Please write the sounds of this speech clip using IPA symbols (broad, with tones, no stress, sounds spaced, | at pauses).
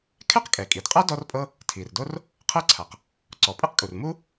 kʰ ɛ˥ q kʼ ɛ˩ kʼ i˩ d qʼ a˥ d ɔ˥ r pʼ ɤ˥ | tʰ i˩ r d o˥ r | qʰ ɤ˥ ǀʰ a˩ q | ǀ ɔ˩ pʼ ɯ˥ q kʼ u˩ r m u˥